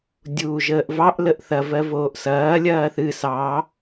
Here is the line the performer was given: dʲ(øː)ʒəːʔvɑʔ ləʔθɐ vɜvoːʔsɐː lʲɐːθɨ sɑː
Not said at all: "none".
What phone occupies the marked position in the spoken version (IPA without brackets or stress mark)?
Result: uː